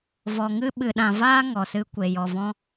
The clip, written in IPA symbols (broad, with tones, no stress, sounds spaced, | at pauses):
v ɔ˨ ŋ ɨ˦ ɓ ɨ˨ ɗ ã˨ v aː˦ ŋ ɔ˨ s ɨ˦ kʷ e˨ j ɔ˨ v ɔ̃˦